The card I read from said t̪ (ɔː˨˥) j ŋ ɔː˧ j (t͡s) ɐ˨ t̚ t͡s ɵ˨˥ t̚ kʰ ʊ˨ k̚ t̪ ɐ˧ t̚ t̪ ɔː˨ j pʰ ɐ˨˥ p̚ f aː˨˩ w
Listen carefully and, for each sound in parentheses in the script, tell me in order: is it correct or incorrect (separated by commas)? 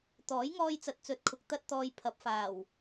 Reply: correct, correct